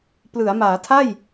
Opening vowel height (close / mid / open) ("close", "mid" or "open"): close